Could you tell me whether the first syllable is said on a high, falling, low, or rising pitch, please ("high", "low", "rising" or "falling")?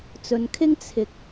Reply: low